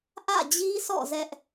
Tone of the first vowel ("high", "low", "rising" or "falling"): falling